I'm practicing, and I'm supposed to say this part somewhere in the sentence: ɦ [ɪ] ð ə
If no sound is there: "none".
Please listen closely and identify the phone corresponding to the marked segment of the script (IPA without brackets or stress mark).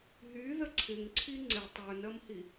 y